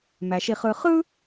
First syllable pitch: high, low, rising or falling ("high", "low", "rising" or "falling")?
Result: low